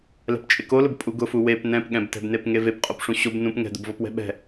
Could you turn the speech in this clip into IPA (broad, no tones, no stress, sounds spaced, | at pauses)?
l ɛ̤ p t͡ʃʼ ɪ k o l ʊ b pʼ u ɡ ʊ f u w e p n ɛ̃ p ɠ ɛ̃ b t ɛ̤ b n e p ŋ e v e p qʼ o p ʂ ũ ɕ o b n ũ p ŋ ɛ̤ d ʊ b v ɔ p w ɛ̤ ɓ ɛ̤